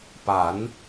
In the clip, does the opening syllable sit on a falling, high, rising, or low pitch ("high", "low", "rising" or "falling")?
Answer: rising